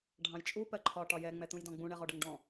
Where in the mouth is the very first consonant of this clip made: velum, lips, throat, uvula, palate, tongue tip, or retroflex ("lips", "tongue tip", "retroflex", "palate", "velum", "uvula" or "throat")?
retroflex